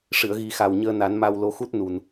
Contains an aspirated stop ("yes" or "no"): no